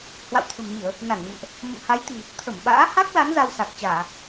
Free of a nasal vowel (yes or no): yes